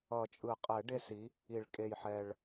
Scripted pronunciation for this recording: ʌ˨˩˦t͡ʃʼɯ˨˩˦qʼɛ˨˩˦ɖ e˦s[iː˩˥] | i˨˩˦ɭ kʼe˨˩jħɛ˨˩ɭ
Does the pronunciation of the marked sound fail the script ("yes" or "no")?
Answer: yes